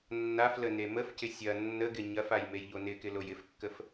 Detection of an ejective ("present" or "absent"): absent